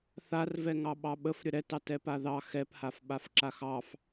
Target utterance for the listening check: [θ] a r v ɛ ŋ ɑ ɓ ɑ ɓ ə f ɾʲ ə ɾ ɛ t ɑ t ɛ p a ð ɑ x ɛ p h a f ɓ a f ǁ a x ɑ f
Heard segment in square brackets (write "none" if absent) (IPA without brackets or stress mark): θ